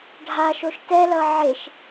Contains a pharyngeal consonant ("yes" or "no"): yes